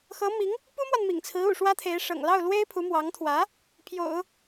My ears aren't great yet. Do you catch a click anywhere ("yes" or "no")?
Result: no